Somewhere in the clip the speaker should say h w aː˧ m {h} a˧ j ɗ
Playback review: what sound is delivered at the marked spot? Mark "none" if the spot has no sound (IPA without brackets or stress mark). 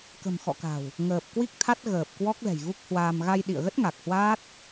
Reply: ɣ